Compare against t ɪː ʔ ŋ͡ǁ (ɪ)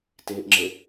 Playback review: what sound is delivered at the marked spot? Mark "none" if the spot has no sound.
ɪ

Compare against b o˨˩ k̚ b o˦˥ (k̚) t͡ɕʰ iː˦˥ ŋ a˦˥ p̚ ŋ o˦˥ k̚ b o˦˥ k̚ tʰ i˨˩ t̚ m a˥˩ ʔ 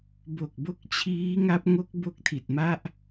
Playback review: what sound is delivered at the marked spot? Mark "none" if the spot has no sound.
k̚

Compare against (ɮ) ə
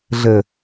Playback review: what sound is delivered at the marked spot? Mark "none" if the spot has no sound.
ɮ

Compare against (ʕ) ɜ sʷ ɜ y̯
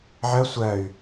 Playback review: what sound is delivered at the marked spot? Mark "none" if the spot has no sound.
ʕ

